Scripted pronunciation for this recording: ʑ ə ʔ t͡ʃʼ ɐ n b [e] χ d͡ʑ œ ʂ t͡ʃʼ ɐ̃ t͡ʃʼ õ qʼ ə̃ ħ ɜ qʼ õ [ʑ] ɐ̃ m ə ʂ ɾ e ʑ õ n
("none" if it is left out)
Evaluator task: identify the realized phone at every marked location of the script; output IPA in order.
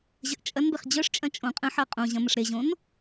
e, ʑ

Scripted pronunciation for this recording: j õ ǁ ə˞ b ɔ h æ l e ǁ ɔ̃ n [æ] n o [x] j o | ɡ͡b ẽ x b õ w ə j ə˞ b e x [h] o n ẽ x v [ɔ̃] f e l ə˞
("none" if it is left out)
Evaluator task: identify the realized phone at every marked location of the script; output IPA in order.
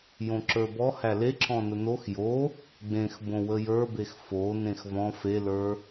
ə, x, f, ɔ̃

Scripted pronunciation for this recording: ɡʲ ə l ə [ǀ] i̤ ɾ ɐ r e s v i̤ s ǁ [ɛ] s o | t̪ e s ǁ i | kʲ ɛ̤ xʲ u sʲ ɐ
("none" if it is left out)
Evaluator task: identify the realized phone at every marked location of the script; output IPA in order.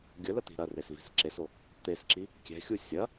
t̪, e

